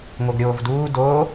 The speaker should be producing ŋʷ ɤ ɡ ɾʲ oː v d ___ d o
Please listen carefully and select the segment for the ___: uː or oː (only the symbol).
uː